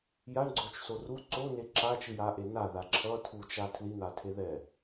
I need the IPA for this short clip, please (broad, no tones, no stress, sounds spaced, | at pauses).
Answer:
j a ɳ ɡ͡ǀ o t͡ʃ s o r u ǀ o n e ǁ a t͡ʃ ɯ j a ʔ e n a ð a ǁʰ ʌ tʰ u t͡ʃ a tʰ l i n̪ a tʰ e ð ɛ